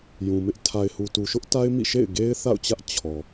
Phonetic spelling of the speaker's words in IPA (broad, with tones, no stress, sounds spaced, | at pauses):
j ũ˨ m ɪ˦ ʔ tʰ a˨ ɪ̯ h u˨ t u˨ ʃ ʊ˦ ʔ t a˦ ɪ̯ m ḭ˦˨ ʃ ḛ˦˨ ɪ̯ ɡ e˦ ɪ̯ θ a̰˦˨ ʊ̯ t͡ɕ ä˦ ʔ t͡ɕʰ ɔ˨